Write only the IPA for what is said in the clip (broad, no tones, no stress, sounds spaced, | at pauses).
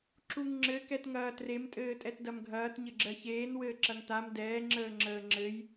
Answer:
ǁ u ŋ ŋ͡ǁ ɘ k ɛ t ŋ ɐː t r e m tʼ ɘː tʼ ɛ t d ɐ m ɡʱ ɐː t ɲ ɘ ɡ͡ǁ ɜ ç eː n w ɘː ǁ ɐ ŋ t a m d ɛː ŋ͡ǁ əː ŋ͡ǁ əː ŋ͡ǁ ɘ j